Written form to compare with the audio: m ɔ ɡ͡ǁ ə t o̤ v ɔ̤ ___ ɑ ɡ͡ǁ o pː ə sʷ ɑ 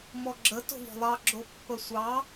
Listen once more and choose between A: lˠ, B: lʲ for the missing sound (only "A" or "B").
A